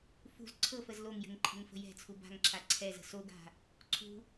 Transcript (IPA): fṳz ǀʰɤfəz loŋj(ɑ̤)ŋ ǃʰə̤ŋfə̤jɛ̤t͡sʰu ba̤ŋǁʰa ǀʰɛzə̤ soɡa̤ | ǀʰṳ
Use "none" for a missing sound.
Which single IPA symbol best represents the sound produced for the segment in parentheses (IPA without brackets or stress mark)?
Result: ə̤